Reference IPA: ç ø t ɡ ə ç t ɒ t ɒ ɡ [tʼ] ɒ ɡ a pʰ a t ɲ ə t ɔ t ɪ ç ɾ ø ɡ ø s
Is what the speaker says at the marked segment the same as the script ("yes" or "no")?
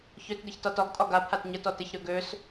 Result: yes